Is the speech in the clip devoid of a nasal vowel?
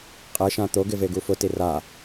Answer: no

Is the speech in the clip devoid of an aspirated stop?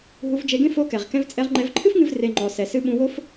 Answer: no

